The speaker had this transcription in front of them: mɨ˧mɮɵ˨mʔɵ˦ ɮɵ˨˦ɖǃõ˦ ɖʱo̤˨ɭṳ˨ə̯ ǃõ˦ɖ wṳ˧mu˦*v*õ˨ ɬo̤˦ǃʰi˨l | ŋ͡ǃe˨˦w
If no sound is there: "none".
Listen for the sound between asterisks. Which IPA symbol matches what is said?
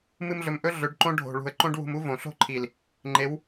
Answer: v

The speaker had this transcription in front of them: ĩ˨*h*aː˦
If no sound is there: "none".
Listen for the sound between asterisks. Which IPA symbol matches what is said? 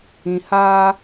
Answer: h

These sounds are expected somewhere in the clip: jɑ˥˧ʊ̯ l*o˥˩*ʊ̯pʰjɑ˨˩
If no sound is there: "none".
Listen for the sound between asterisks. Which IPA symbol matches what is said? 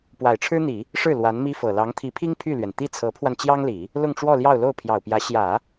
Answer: o˥˩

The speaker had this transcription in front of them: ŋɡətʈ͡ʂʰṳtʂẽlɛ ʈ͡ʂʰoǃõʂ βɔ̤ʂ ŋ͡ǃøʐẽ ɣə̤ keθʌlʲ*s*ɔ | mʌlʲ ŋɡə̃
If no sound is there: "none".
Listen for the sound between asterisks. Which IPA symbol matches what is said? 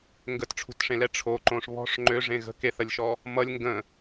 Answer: ʃ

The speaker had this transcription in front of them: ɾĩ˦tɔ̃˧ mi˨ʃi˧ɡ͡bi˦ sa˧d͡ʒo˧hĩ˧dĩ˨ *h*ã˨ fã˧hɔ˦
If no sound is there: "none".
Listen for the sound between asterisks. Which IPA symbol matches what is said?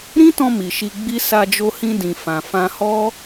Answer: f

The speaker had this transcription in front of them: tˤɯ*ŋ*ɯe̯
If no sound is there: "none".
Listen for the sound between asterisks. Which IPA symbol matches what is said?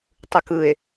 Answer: k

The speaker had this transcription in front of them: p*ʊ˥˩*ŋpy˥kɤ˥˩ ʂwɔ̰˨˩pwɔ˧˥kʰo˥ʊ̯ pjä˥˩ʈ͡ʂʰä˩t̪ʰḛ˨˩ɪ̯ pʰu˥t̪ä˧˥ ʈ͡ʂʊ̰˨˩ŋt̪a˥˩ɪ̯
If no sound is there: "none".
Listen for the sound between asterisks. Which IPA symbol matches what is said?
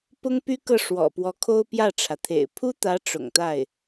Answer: ʊ˥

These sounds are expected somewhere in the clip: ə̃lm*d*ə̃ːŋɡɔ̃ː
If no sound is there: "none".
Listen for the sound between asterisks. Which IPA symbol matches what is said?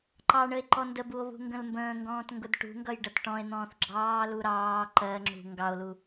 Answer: b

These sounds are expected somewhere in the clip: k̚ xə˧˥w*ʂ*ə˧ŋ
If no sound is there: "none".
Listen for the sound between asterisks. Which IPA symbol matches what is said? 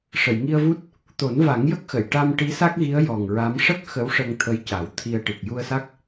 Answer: ʂ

